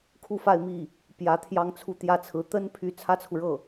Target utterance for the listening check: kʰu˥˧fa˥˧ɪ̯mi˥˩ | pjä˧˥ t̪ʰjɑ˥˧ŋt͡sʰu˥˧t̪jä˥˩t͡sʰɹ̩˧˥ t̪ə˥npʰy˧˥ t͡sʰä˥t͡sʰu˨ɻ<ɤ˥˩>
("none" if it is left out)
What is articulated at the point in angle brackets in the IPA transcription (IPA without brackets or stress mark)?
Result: ɤ˥˩